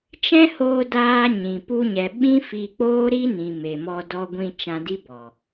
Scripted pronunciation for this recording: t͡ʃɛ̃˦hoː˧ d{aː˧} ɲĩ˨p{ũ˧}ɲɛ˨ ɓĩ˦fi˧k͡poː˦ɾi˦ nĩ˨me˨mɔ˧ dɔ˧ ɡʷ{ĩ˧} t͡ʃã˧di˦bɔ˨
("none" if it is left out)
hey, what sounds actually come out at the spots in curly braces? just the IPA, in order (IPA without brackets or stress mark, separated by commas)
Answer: aː˧, u˧, ĩ˧